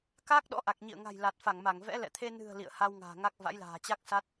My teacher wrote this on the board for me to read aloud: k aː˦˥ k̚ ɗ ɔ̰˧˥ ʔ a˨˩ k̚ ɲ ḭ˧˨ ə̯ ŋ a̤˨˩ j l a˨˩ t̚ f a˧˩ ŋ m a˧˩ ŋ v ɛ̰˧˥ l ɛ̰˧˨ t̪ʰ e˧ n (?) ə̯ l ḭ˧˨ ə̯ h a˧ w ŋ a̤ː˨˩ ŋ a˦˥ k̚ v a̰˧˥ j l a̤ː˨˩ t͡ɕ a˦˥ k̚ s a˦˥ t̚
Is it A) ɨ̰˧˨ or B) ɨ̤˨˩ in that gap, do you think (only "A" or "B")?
B